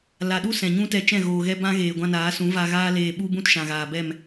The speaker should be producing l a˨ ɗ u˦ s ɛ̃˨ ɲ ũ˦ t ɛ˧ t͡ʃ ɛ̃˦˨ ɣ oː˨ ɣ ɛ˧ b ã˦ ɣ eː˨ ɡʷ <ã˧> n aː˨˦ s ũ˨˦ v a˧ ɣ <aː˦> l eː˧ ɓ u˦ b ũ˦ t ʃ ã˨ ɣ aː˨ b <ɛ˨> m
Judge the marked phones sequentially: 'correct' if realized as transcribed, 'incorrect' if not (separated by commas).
correct, correct, incorrect